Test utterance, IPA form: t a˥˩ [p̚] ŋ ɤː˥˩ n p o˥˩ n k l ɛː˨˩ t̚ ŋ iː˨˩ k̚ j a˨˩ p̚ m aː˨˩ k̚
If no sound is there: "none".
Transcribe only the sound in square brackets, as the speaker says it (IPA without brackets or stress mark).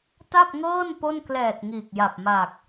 p̚